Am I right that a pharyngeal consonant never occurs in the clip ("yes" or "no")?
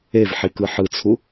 no